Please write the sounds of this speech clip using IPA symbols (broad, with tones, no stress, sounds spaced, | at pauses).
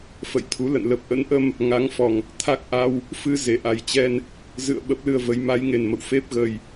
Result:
f ə̰˧˨ j t̪ʰ u˨˦ l ə̰˧˨ n l ə˨˩ p̚ ʔ ə̰˧˥ n ʔ ə˧ m | ŋ a˨˦ ŋ f ɔ˨˩ ŋ | t̪ʰ a˦˥ k̚ ʔ a˧ w | f ɨ˧ z e˧˩ ʔ a˨˩ j t͡ɕ ɛ˧ n | z ɨ̰˧˨ ə̯ ɓ ə˦˥ p̚ l ɨ˧ ə̯ v ə˨˦ j m a˨˦ j ŋ e˨˩ n m ə̰˧˨ w f e˦˥ p̚ ɣ ə˨˩ j